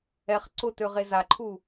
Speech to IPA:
ɛ χ ǀ ʊ t ø ʁ e z a ǃʰ u

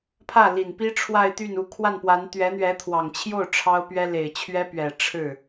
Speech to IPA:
pʰ ä˥˩ l i˨˩ n p i˥ ʈ͡ʂʰ w a˥˧ ɪ̯ t̪ y˥˩ n u˧˥ kʰ w a˥˩ n p w a˧˥ n t̪ ɥ ɛ˧˥ n̪ ɥ ɛ˧˥ t̪ʰ w ɑ˨˩ ŋ t͡ɕʰ j o˥˩ ʊ̯ ʈ͡ʂʰ ɑ˥ ʊ̯ p ɥ ɛ˥ l e˨˩ ɪ̯ t͡ɕʰ ɥ ɛ˥ p ɥ ɛ˨˩ ʈ͡ʂʰ ɻ̩˥˩

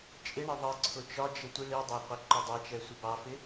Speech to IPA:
t͡ʃʼ ɪ ɳ ə ðˤ ə ǀʰ ʊ t͡ʃ ɒ d͡ʒ ə tʷ i ɭ i dˤ a qʷ i ǃ ʊ dˤ ɑ t͡ʃ ɛ sʷ ɪ b ɑ f ɪ

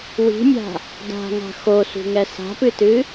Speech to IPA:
w i̤ mʲ a̤ | d a̤ ŋ a̤ x o s ṳ ŋ ɛ s a̤ p ɨ t ɨ

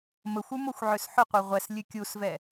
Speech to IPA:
m ə xʷ ʉ m o xʷ ʕ ø s ħ ʊ qʷ e ʁʷ ɛ s lʲ ʉ kʲ u s v ɛ

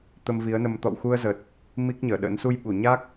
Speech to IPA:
t̪ ə˧ m v i˨˦ ə̯ n ə˧ m t̪ ɔ̰˧˨ w x u˧ ə̯ z ə˨˩ t̚ | m i˦˥ k̚ ɲ əː˧˩ ɗ ə̰˧˥ n s u˧ j ɓ u˧˩ ɲ a˦˥ k̚

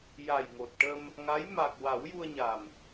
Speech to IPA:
j a˨˩ j ŋ o˨˩ t̚ ʈ ə˧ m | ŋ a˧˥ j m a˨˩ k̚ w a˨˩˦ w j u˧ ə̯ ɲ a˨˩ m

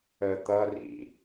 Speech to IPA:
ə t̪ ʌ r ḭ

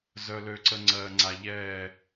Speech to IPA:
z œ˨ l ø˨ ǀ ə˨ ŋ͡ǀ ɜː˨ ŋ͡ǀ a˨ ʎ ɛː˦˨

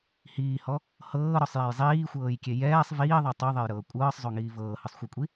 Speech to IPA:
h iː h ɔ | h ɤː ɾ ɔ sˤ j a j zˤ iː xʷ ɤː j kʲ e j ɛː sˤ v iː ðˤ ɛ tˤ o ðˤ e j ɾ ɤː kʷʼ ɤː sˤ zˤ o ŋ iː v ɤː h ɯ sˤ xʷ ɤ kʷʼ i

